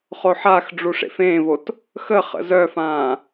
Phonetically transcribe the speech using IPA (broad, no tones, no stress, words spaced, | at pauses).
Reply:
χoħaxɖ͡ʐu ʂḛfẽːvot | xəχə̰ zœfãː